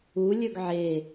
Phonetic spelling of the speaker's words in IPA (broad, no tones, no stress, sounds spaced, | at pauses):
u lʲ ɵ ɡ ʕ e